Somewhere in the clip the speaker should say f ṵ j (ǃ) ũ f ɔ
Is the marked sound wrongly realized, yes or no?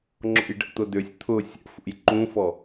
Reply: no